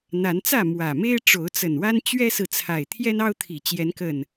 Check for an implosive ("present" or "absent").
absent